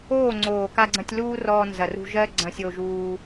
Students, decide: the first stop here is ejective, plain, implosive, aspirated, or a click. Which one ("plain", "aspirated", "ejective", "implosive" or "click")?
click